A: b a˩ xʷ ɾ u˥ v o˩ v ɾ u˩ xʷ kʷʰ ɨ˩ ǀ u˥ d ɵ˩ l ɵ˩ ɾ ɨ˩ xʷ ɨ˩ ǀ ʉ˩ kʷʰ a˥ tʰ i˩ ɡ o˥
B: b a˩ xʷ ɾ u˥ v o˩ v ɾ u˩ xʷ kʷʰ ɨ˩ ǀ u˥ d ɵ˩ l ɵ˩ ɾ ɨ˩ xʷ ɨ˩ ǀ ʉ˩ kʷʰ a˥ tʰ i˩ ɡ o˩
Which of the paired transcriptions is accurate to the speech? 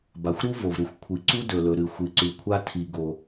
B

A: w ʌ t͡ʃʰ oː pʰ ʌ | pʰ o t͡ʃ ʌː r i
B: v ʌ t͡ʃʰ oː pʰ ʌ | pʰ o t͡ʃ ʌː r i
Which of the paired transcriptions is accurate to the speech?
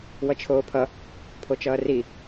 A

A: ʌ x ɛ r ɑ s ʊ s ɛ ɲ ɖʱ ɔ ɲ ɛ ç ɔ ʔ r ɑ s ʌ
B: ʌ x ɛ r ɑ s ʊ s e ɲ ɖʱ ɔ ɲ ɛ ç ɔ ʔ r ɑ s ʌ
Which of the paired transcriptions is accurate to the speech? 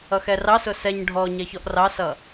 A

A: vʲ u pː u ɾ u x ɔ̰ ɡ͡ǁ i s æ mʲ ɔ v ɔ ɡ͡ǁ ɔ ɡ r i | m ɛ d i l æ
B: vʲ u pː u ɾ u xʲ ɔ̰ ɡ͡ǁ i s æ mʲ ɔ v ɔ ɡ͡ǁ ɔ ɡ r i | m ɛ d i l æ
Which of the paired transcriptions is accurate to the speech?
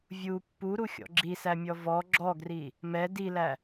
B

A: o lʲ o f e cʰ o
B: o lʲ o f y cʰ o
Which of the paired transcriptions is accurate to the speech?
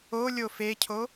A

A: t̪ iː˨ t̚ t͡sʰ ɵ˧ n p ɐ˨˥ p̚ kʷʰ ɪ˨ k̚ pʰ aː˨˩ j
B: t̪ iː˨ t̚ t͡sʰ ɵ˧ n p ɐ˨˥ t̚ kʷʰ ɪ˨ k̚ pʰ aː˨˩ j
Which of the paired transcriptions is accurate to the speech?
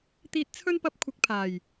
A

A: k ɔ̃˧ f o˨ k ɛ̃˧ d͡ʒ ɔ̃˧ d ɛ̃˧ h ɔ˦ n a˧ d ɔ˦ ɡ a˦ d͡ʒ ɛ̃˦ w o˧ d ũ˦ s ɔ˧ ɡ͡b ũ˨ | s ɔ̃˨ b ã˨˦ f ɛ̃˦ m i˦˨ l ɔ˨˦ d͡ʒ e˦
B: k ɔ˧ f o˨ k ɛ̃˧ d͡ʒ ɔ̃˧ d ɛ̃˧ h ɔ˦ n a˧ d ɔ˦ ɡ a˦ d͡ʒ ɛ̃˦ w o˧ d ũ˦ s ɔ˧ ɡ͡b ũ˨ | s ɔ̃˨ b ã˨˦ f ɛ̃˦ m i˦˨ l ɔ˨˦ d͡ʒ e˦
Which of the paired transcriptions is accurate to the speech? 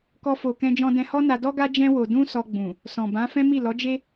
B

